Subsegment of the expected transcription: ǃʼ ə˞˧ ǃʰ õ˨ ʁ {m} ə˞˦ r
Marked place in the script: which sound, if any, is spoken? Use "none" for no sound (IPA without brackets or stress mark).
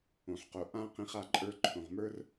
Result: m